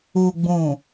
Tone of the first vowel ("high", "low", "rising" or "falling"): low